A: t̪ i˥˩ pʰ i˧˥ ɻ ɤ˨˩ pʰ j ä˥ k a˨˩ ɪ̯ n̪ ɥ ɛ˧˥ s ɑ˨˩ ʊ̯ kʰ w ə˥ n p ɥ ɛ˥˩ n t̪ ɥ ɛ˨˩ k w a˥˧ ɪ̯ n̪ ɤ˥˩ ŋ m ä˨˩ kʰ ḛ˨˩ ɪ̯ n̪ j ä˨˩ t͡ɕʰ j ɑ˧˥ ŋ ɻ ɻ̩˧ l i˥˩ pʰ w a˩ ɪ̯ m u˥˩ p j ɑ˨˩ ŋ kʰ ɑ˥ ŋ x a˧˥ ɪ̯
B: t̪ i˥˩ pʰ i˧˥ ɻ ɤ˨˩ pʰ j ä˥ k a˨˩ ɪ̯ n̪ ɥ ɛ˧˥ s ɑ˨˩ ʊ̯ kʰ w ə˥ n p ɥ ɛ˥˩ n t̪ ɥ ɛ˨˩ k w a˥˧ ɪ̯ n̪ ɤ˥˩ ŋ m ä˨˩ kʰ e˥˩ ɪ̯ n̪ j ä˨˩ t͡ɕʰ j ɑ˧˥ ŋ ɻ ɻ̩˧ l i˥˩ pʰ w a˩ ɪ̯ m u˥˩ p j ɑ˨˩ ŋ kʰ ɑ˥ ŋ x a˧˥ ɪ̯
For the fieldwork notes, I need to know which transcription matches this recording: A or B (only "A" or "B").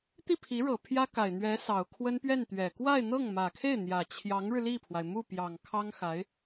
B